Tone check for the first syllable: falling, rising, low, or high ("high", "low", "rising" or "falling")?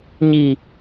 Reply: low